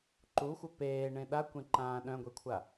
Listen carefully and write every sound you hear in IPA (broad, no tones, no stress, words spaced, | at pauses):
ǃuxʷœ peːɳẽ ɗakʷẽǃãː ɗœ̃ɡʷekʷʰa